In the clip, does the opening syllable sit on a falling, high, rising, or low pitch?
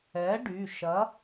rising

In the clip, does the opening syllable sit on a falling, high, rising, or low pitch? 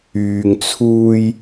low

